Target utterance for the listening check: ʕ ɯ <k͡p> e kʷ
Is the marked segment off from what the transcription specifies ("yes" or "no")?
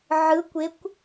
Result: yes